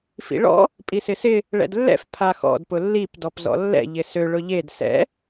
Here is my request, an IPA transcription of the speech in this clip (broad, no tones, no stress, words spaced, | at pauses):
fḭɭɔ̰ | pʼisɪsɪ | ɭɛ̰dlːɛ̰f pʰaxɔ̰d pʊlːip dɔpzɔ̰lːɛ̰ ʎɪsø ɭʊʎed sɛ̰